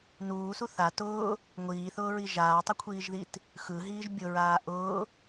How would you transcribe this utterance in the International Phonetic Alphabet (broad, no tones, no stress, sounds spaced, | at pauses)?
n uː s u θ a t ʊː | ŋʷ iː θ ʊː ɹ i ʒ aː tˤ ʊ kʷʰ iː ʒ ð i t | x ɯ ɦ iː ʒ bʲ ʊ ɹ aː ʔ ʊː